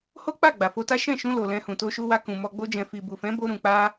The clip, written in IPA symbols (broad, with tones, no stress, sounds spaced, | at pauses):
h o˦ k͡p a˦˨ ɡ͡b a˨ f o˧ t a˦ ʃ ɛ̃˦˨ ʃ ũ˧ l o˨ l ɛ̃˧ h ũ˨ t o˧ ʃ u˧ w a˧ k ũ˨ m ɔ˧ ɡ͡b o˧ d͡ʒ ɛ̃˨ f i˨ b u˨ f ɛ̃˨˦ b o˧ ɾ ũ˨ k͡p a˧